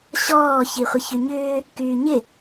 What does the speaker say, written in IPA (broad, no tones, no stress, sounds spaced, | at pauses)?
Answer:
ɕ ɔː ç i χʷ ɪ ç y ɲ ʏː | k yː ɲ ɪ